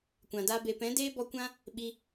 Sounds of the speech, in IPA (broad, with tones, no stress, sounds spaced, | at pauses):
kʷ ã˨ d a˦ b e˧ p ɛ̃˨˦ d eː˦ b ɔ˧ kʷ ã˦ | ɓ i˧